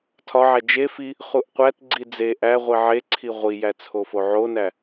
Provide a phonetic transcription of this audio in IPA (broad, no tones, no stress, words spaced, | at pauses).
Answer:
tʰɒʕæ d͡ʒe fi | χuʔqʷætɡ͡ǀi d͡ze ʔæ ʁʷiʕeǀʰi ʁʷijæ t͡sʰofoʕonæ